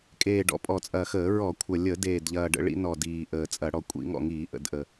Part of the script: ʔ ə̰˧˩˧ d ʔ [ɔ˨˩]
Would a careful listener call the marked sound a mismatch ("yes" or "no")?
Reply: yes